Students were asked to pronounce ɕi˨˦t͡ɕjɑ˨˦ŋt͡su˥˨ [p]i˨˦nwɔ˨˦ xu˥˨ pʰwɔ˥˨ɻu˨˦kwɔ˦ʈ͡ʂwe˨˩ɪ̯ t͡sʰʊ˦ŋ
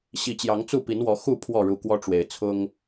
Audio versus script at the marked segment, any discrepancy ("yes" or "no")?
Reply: no